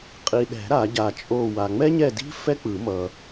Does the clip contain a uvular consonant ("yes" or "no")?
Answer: yes